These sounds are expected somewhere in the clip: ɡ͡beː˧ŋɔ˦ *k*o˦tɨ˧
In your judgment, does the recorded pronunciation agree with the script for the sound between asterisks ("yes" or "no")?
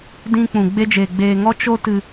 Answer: no